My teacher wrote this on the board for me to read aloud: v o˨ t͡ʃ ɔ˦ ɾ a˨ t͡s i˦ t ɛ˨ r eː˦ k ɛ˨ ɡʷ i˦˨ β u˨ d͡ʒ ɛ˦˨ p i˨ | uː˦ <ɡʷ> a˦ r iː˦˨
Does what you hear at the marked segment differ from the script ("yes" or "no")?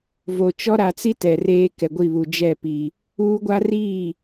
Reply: no